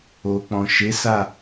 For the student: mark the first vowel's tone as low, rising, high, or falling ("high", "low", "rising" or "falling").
low